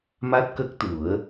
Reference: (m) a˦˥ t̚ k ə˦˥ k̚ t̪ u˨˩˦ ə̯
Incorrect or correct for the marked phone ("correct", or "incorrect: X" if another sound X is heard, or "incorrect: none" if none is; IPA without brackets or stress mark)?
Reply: correct